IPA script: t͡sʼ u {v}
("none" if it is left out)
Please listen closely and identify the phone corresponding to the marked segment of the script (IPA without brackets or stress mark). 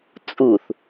θ